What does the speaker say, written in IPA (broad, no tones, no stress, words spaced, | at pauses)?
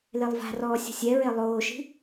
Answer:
lelˠva̤rɔː sʲo̤sʲɛɹe lˠoːʃi̤